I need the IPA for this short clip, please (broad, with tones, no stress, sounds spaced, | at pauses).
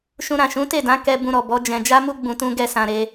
ʃ ũ˧ ɾ ã˨ ʃ ũ˨˦ t e˦˨ d ã˨˦ k ɛ˧ b ũ˧ ɾ ɔ˨ b ɔ˨˦ d͡ʒ ɛ̃˧ d͡ʒ a˦ m u˦ ɡ͡b ũ˧ t ũ˦ ɡ ɛ˦ s ã˧ ɾ e˦